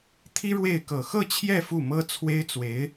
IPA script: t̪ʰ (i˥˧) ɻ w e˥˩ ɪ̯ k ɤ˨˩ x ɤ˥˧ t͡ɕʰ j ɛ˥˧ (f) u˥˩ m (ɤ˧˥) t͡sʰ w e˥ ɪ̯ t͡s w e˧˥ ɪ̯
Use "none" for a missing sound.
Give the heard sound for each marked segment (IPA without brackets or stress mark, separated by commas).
i˥, f, ɤ˥